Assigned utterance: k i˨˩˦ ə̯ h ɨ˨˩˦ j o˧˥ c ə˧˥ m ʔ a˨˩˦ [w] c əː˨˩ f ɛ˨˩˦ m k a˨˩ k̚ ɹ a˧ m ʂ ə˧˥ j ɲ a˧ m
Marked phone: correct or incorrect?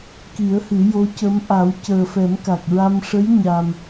correct